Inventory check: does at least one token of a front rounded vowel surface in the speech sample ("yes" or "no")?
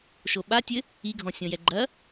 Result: no